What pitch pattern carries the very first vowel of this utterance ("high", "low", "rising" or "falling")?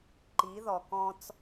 rising